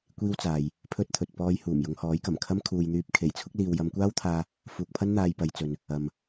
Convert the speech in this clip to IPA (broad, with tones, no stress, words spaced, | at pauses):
kʷiː˥wt͡saː˨j | pʰɵ˥t̚t̪ʰɵ˨t̚ pɔː˧jhuː˨˩m jʊ˨˧ŋhɔː˨˥jkɐ˨˩mkʰɐ˥m kʰuː˨jn̪yː˧p̚kʰe˨˩j t͡sʰʊ˥k̚ liː˨wjɐ˨˧mkʷaː˥wt̪ʰaː˧ | fuː˨k̚pʰɐ˥n n̪aː˧jpɐ˨˧jt͡sɵ˨n | ɐ˨m